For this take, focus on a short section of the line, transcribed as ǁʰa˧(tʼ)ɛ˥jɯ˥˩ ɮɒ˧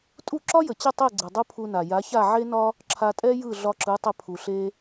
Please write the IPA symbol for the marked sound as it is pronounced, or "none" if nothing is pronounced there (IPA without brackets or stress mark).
tʼ